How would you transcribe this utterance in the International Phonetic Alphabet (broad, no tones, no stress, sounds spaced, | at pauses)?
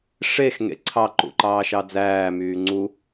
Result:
ʂ e x ŋ ḛ ǀʰ ɑ ǃ ṵ ǃ ɑː ʃ ɑ d͡z æː m yː ŋ͡ǀ u